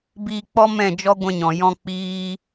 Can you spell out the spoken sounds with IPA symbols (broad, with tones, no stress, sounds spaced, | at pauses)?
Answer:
b iː˧ k͡p ɔ˦ m ɛ̃˦˨ d͡ʒ ɔ˦ ɡʷ ɛ̃˧ ɲ ɔ̃˨ j ɔ̃˦ k͡p iː˦